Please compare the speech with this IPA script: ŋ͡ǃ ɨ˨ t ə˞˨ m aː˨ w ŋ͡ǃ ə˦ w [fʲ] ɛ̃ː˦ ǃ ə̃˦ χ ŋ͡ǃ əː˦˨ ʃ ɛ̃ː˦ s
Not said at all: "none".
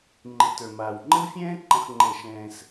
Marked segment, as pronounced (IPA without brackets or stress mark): fʲ